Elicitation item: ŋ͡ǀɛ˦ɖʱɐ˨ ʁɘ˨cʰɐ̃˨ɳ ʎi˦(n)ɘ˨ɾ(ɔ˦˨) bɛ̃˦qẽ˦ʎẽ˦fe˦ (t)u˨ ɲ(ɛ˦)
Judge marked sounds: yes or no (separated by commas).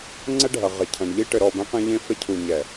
no, yes, no, no